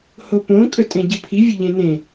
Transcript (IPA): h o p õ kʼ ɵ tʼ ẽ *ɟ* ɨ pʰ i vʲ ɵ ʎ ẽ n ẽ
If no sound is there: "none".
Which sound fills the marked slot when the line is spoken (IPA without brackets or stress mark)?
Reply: ɟ